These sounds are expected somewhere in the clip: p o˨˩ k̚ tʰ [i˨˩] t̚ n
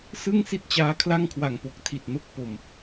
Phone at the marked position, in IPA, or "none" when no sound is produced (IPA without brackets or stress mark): i˨˩